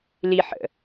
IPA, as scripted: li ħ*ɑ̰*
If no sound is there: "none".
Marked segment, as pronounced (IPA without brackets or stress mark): ə̰